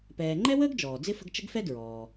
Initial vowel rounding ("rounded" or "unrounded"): unrounded